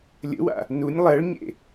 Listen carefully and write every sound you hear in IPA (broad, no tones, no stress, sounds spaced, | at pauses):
lʲ ə̰ w a̰ | n u nʲ lˠ ɜ ɭ ɲ ḛ